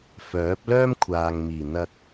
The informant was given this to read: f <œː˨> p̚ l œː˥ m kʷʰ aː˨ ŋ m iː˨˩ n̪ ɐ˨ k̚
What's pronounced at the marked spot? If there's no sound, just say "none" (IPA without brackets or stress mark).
œː˨˥